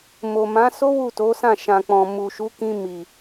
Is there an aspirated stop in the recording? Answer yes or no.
no